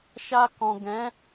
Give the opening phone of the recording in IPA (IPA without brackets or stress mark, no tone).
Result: ʃ